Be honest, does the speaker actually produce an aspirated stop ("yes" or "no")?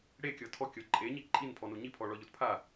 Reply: yes